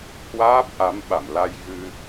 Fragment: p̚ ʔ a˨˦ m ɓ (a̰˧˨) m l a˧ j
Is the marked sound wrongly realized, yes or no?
no